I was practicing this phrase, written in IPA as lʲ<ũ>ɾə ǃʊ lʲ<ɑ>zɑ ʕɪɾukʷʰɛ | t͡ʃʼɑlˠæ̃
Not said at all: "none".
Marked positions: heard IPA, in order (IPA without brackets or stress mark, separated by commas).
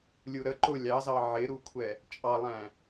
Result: u, ɑ